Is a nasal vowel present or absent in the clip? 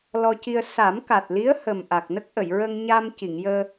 absent